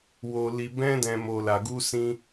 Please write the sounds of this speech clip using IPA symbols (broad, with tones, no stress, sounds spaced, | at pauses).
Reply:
w o˨ l i˨ b ɛ̃˧ d ɛ̃˨ m o˨ l a˨ ɡ u˧ s ĩ˧